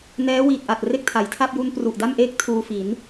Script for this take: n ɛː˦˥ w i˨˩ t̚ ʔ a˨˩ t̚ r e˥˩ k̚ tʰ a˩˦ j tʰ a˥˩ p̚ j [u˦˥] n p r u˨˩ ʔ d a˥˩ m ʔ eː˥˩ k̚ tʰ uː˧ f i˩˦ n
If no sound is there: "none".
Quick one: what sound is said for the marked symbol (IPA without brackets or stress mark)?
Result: u˦˥